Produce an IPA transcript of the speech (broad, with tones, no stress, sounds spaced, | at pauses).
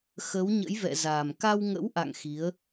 x ə˨˦ w ɲ ə̰˧˥ j v ɛ̰˧˨ z a˨˩ m k a˧ w ŋ ə̰˧˥ w ʔ a̰˧˨ ŋ x i˨˦ ə̯